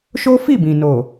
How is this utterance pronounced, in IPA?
ʃo˦fi˦˨bĩ˨ no˨

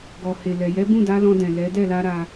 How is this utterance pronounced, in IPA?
ɡɔ˨he˨lɛ˨ jɛ˨˦bũ˦˨da˨˦ lɔ̃˧dɛ̃˨lɛ˨˦ dɛ˦˨la˧ ɾa˧

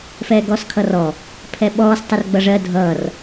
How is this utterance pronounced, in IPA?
fɛːɡɔːskʰʌrɔ | pʰɛɓɔːs tˤərɡ͡bʌʐɜ dʱʌːr

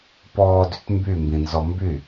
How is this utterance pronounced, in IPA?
pɔːdyt mbymbĩnzɔ mby

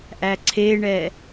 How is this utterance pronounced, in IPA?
ʔæǀʰeɳɛ

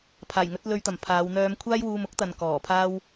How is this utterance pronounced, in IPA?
pʰaː˨˩jŋɵ˨˥t̚ lɵ˧ɥt̪ɐ˨˩mpʰaː˨˧wn̪œː˧m kʷʰaː˥jwuː˧mʊ˥k̚t̪ɐ˨n kɔː˨˩pʰaː˥w

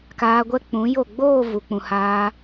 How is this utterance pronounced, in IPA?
kaː˧ɡʷɛ˦ k͡pũ˨˦jo˦˨ ɡ͡boː˦˨ vu˨k͡pũ˨haː˧

